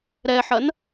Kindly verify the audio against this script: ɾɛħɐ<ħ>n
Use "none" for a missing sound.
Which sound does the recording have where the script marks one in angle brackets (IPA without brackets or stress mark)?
none